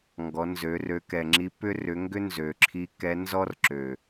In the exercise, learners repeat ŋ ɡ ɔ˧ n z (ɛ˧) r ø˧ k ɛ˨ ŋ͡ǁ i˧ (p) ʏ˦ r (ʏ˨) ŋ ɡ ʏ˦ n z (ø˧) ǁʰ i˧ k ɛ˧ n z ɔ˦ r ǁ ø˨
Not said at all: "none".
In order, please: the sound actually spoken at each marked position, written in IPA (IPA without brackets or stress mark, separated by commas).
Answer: ø˧, p, ʏ˧, ø˨